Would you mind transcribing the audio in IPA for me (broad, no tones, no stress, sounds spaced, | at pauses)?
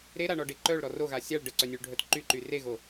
ɾ e ɾ a ɳ ɔ ɖ e ǃ œ ɭ ɾ ɔ r o ɣ a sʲ a ɭ ɖ ə ǀ œ nʲ ø ɭ ɖʱ œ t ǃ y ǃ y r e ɣ o